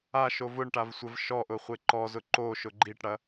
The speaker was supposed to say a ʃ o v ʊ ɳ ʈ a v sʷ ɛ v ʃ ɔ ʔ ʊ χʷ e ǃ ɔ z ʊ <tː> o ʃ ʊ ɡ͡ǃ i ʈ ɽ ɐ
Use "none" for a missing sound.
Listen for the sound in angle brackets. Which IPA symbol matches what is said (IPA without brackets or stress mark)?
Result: ǃ